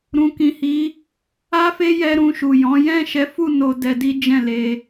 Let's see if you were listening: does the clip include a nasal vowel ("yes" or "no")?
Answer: yes